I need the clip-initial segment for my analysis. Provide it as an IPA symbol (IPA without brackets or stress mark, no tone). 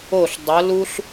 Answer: o